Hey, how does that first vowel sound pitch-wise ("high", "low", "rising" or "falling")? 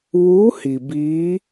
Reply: rising